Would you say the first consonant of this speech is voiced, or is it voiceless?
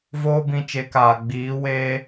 voiced